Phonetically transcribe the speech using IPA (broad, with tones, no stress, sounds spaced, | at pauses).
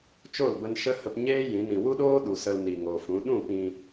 t͡ʃ o˦˨ l b ə˧ n ʃ ə˦ h ə˧ p ɲ eː˦ j ĩ˨˦ n ĩ˨ w u˦ ɗ oː˦ ɗ u˨ s ə˧ l n i˨ ŋ o˨ f ũ˨˦ ɗ ũ˦˨ p ĩ˧